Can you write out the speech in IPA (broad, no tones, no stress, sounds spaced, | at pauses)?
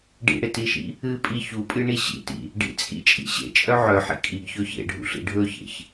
ɖ ḭ ɽ e t i ʃ ḭ | ɨ pʼ i ç u pʼ ɨ ɳ i ɕ ḭ t ḭ | ɖ ḭ t͡sʼ ḭ t͡ʃʼ ḭ ɕ ḛ t͡ʃʼ œ ʕ œ ħ ḭ kʼ i ɡ ç ɵ ç ḛ ɖʱ ṵ ɬ ḭ ɖʱ ɵ ç ḛ ç